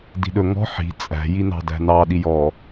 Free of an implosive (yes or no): no